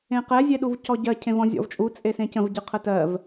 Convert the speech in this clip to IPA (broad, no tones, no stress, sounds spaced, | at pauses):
ẽ q ɛ zʲ e ɗ u v c ɔ ɟ ɜ cʰ ẽ v ɔ̃ zʲ ɔ̰ v t͡ʃʼ u t͡sʼ e s ẽ c ə̃ v ɟ ɨ qʰ ə t ɜ v